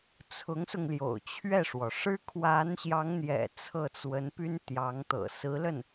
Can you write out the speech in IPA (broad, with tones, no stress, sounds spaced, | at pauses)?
t͡sʰ ʊ˧˥ ŋ s ʊ˧ ŋ l j o̰˨˩ ʊ̯ t͡ɕʰ ɥ ɛ˥˩ ʂ w ɔ˩ ʂ ɻ̩˥ kʰ w a˧˥ n ɕ j ɑ˧˥ ŋ n̪ j ɛ̰˨˩ t͡sʰ ɤ˥˩ t͡s w ə˧˥ n p y˥ n t̪ j ɑ˧˥ ŋ t̪ ɤ̰˨˩ s ɹ̩˧˥ l ə˥˩ n